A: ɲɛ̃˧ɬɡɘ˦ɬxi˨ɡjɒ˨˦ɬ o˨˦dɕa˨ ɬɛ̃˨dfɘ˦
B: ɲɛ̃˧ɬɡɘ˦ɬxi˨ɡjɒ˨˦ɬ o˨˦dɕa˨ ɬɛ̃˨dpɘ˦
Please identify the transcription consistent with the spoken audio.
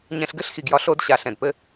B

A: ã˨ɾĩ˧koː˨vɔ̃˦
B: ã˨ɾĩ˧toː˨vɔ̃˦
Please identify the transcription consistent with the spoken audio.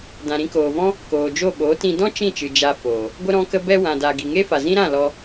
A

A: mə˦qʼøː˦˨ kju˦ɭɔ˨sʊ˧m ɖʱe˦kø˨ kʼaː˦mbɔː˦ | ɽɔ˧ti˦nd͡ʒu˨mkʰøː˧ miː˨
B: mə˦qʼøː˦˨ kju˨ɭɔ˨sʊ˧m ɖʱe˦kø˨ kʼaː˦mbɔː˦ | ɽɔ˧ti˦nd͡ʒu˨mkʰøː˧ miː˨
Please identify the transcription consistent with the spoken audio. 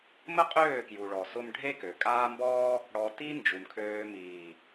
B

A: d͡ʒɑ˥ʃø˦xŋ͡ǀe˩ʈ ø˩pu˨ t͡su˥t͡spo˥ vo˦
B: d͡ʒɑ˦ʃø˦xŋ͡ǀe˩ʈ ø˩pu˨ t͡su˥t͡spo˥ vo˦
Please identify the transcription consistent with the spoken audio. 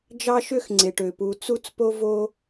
B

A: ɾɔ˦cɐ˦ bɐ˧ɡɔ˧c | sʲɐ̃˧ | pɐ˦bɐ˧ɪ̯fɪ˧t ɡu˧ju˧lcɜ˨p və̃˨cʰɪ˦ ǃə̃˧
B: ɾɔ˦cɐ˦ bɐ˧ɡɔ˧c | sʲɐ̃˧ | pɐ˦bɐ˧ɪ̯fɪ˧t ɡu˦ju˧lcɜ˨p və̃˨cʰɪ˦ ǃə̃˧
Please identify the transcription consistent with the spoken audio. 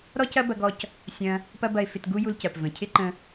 B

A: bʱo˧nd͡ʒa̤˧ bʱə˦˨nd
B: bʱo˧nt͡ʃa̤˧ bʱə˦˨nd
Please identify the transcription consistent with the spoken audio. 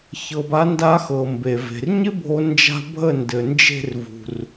A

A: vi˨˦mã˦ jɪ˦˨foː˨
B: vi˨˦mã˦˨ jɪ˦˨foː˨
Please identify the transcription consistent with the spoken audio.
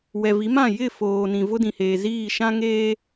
B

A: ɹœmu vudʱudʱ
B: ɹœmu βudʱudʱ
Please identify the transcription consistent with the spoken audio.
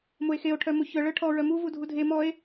A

